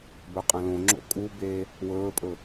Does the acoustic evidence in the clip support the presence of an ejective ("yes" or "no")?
yes